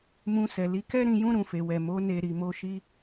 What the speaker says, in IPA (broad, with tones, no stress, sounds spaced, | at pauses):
m ũ˧ s ɛ˨ l i˧ k ɛ˦ ɾ ĩ˧ j ũ˦ ɾ ũ˧ f e˧ w ɛ˨ m o˨˦ n e˧ ɾ i˨ m o˧ ʃ i˧